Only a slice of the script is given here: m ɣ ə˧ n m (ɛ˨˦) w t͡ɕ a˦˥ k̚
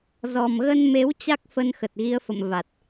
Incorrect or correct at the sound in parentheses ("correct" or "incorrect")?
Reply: incorrect